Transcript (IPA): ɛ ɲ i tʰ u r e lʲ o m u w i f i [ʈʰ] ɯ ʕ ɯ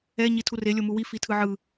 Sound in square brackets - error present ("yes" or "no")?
yes